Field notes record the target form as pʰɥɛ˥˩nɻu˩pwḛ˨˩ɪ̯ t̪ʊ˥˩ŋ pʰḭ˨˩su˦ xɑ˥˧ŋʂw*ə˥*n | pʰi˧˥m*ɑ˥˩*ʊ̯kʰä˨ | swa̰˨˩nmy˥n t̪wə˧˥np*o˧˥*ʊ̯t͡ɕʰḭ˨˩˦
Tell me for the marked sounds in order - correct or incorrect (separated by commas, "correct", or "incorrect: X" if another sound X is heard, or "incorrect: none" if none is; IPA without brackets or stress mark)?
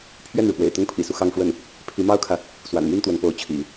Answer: incorrect: ə˥˩, incorrect: ɑ˥, correct